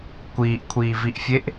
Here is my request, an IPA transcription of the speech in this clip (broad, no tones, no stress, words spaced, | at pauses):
kʷiːʔkʷʰiːviʔfʲeʔ